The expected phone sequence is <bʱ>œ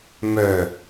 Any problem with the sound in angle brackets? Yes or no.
yes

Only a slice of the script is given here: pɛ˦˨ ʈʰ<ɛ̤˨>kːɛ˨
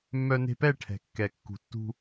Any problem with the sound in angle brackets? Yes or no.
no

